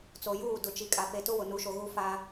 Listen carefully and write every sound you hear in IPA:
t͡s o˨ j uː˦˨ d ʊ˨ t͡ʃ i˨ kʼ a˨ p e˨ t ʊ˦ w ʊ˨ n u˨˦ ʃ o˨ ɣ u˦ f a˦

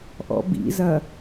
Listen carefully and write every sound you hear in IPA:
ʔ ɔ̰ b ḭ z ɐ

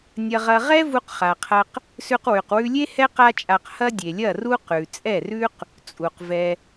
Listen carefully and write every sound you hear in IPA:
nʲ ɐ˧ ʁ ɐ˧ ʁ ɛ˦ v u˧ q χ a˨ qʰ ɐ˧ q | s ʉ˧ q w ʉ˨ q w ʉ˧ lʲ e˦ h ɛ˦ q a˦ t͡ʃʼ a˧ q h ɐ˦ dʲ e˨ lʲ ɐ˦˨ r u˦ q ʉ˨ t͡sʼ ɛ˦˨ r ʉ˦ q | t͡sʼ u˨ q v ɛ˧

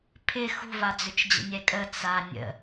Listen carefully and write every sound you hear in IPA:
pʰ ɪ x ṳ v a d͡z ʏ t͡ʃ d͡ʑ ə̰ nʲ ɛ kʼ ə t͡s a nʲ ə̰

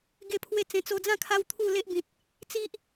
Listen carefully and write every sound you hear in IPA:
ɡ e˧ pʰ w e˧ t͡s ẽ˨˩ t͡s o˧ d͡z ã˥˧ kʰ a˦ w t̪ʰ u˥˧ l e˦ ʔ b ĩ˨ t̚ | t͡s i˦ ʔ

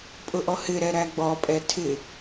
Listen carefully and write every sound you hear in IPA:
pʼ ʊ ʔ ɔ h ɪ ɾ ɛ ɾ æ ɡ͡b ɔ pʼ ɛ tʰ ɪ

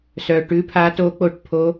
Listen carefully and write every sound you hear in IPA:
s œ˨˩ ʈ ʉ˧˥ pʰ a˧˥ t o˧˥ k͡p o˧˥ ʈ pʰ o˧˥

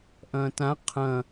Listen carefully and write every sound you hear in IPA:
ʔ ɐ̃ː t ã qʰ ɐ̃

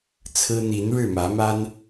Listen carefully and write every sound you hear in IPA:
t͡sʰ ɹ̩˦ n̪ i˨˦ n ɻ ɻ̩˥˨ m ä˨˦ m a˦ n

